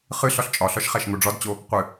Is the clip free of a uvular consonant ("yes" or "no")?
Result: no